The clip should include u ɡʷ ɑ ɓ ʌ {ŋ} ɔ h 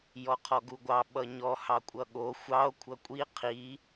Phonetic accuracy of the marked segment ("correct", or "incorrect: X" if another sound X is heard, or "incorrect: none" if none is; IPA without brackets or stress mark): incorrect: ɲ